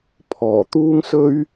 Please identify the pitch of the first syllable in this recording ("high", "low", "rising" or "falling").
low